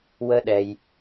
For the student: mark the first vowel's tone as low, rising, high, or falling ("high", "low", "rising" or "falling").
high